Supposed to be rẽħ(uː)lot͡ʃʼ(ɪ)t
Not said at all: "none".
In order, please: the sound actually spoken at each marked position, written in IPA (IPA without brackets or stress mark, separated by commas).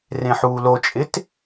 uː, ɪ